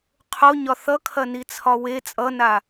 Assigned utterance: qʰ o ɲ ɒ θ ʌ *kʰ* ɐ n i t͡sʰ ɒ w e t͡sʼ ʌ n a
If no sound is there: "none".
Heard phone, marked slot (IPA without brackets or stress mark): kʰ